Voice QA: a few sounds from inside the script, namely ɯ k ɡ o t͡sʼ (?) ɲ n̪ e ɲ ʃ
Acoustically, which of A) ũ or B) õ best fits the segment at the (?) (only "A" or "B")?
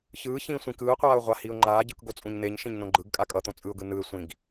A